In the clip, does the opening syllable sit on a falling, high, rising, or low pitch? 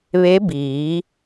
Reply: rising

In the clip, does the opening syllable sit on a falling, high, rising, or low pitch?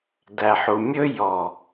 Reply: low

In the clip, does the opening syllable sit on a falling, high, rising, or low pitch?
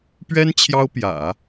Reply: high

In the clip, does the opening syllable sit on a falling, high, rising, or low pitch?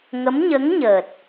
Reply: rising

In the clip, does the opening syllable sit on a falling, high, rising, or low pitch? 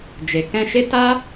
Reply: low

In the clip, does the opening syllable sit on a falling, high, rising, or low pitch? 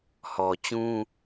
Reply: low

